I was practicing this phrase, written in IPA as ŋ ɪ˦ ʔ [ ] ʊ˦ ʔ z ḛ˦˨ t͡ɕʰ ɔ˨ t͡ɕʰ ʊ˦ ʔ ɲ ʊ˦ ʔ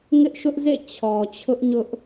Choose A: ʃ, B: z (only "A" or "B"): A